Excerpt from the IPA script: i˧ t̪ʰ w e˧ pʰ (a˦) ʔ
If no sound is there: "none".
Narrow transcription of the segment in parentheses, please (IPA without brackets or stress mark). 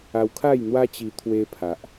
a˨